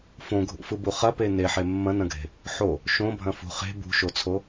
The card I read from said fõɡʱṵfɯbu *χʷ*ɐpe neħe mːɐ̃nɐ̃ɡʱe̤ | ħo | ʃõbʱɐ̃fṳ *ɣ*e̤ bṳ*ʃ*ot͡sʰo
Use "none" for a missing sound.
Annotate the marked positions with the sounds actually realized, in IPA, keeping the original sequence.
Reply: χ, χ, ʃ

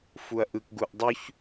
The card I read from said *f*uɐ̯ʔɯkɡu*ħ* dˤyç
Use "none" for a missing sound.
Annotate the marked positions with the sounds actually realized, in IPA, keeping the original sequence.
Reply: f, ʔ

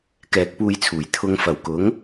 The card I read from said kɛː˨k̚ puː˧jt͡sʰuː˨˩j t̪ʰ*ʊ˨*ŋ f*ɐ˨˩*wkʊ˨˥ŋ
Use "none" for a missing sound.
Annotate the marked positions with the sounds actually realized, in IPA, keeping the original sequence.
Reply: ʊ˨, ɐ˨˩

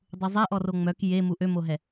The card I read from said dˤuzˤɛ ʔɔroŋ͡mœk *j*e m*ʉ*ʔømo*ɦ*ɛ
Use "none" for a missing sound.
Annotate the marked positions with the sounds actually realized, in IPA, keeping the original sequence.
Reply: j, u, ɦ

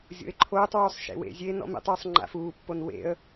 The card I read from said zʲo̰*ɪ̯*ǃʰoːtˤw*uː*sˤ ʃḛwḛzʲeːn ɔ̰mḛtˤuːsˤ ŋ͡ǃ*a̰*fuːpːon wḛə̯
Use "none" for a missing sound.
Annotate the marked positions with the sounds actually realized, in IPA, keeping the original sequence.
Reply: ɪ̯, uː, a̰

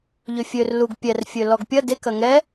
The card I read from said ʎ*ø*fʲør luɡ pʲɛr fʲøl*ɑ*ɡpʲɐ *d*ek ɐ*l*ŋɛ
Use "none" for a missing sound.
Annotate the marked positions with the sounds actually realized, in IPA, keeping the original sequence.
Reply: ø, ɔ, d, none

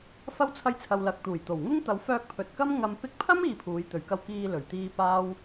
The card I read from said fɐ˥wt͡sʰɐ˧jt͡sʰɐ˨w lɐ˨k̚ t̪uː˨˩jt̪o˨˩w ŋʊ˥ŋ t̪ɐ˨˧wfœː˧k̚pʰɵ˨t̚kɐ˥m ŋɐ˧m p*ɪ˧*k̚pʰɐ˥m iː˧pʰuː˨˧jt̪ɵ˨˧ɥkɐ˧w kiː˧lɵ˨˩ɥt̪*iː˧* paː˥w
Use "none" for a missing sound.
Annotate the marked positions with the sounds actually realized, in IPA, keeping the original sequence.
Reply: ɪ˧, iː˧

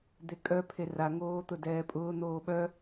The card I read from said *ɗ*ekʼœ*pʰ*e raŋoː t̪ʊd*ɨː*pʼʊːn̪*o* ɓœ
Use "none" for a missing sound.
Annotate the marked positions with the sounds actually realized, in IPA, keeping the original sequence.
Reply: d̪, pʰ, ɛː, oː

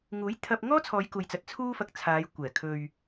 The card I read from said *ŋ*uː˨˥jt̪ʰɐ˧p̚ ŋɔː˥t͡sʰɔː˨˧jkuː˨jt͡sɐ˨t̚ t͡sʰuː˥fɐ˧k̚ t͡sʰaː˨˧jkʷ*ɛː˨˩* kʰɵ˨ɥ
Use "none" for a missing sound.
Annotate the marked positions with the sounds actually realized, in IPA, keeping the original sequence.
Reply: ŋ, ɛː˨˩

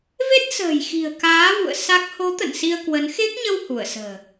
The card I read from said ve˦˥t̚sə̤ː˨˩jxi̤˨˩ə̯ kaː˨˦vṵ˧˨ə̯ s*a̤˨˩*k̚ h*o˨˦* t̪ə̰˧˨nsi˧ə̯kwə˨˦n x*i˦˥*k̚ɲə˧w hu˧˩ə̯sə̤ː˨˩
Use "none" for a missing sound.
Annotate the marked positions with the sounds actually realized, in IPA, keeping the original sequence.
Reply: a˦˥, o˨˦, e˦˥

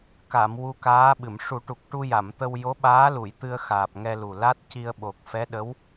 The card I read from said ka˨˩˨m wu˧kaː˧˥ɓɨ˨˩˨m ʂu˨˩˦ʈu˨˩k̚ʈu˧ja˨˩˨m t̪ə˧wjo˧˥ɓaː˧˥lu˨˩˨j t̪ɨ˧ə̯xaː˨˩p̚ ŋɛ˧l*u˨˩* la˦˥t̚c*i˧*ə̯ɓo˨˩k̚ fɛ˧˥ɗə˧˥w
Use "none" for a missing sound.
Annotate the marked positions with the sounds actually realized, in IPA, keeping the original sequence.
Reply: u˨˩, i˧

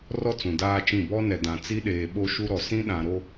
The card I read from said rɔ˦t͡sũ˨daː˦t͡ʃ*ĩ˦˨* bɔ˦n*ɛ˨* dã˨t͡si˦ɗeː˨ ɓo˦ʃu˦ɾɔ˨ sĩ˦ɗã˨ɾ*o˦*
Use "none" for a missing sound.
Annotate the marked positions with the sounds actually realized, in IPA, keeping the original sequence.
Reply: ĩ˦˨, ɛ˨, o˦

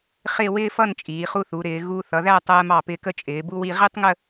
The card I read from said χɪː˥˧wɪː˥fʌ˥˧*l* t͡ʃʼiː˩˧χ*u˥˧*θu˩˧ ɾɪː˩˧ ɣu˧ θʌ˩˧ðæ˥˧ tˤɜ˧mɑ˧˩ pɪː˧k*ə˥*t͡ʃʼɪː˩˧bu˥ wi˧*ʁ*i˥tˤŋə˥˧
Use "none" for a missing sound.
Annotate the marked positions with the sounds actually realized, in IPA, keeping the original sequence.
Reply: n, u˥˧, ə˥, ʁ

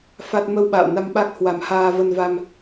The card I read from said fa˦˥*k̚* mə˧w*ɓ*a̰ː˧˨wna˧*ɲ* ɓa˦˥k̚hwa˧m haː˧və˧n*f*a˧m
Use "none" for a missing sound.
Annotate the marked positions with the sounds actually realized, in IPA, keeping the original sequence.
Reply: t̚, ɓ, m, v

